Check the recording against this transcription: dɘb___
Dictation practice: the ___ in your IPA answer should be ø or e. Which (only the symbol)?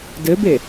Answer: e